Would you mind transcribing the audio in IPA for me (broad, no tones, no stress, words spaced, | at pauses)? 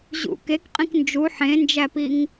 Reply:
ʑṵ kekqʼĩk nd͡ʒu ħẽnd͡ʒæpiŋ